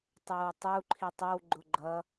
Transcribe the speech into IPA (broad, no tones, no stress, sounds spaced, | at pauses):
tˤ ɛ w tˤ u ǃʰ i tˤ ʌ w ɡ͡ǃ ʊ ɡ͡ǃ ʌ